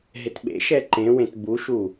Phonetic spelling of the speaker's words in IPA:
ɦ ɪ t ɓ ḛ ʃ ɛ ǃ ẽ w ẽ t b u ʃ u

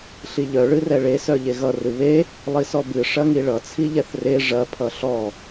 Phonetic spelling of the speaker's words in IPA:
ɬ i ʎ œ ɭ ɨ r ɛ ɭ e s œ ʎ e ɣ ʌ r ɨ β e | lˠ i s ɔ b ɨ ʂ ɐ ŋ i ɭ ʌ t͡sʰ i ʎ ɛ θ r e ʐ ɐ pʰ ʌ ɬ ɔ

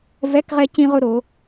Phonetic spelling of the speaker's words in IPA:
v ɛ˧˥˧ k ʁ ɛ˥ c ĩ˥ ʁ ʊ˥ ɾ o˨˥

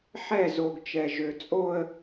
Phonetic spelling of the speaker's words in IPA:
ħ ɛ˦˨ z o˨ ɡ t͡ʃ ɛ˨ ʒ ø˨ t͡sʼ o˦ ə̯

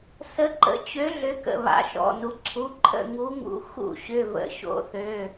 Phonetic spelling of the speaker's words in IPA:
s ə˨˥ ǃ ə̰˨˥ t͡ɕ ø˨˥ ɮ ʏ˩˧ k ə̰˩˧˩ β a̰˩˧ ʃ ɔ̰˩˧˩ n u˩˧ ǀʰ u˩˧˩ ǃʰ ə̰˥˨ ŋ u˨˥ ŋ ṵ˨˥ x ṵ˥˨ ɕ ʏ˩˧˩ v ə̰˩˧˩ ɕ o̰˨˥ θ ø˩˧˩

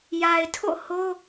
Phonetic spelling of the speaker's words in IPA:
j a˨ ɪ̯ tʰ o̰˦˨ h o˦

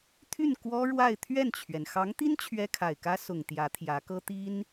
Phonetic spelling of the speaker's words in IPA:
t̪ʰ y˥˩ n k w ɔ˥ ɻ w a˥˧ ɪ̯ t̪ʰ ɥ ɛ˥˩ n t͡ɕʰ ɥ ɛ˩ n x ɑ˧˥ ŋ t̪ i˥ n t͡ɕʰ ɥ ɛ˥ kʰ a˨˩ ɪ̯ k ä˥ s ʊ˨˩ ŋ t̪ j ä˧˥ t̪ʰ j ä˧˥ k ɤ˥ t̪ i˥ n

